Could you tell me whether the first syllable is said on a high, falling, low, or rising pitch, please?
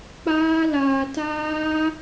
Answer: high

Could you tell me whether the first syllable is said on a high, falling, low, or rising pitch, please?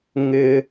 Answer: high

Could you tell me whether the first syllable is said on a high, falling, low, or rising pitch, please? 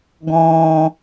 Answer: low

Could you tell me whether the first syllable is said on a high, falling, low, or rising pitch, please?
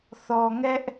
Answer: low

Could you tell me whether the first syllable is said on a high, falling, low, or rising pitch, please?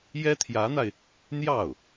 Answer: high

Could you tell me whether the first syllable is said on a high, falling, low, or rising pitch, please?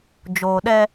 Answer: low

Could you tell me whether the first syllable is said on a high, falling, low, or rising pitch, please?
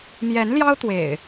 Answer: rising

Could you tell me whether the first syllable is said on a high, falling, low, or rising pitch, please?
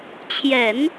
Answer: low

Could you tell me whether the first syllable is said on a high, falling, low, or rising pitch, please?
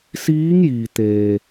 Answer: rising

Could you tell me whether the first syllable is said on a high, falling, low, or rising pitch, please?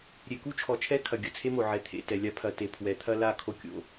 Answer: low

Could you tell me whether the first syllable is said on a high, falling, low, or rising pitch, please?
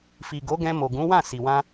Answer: low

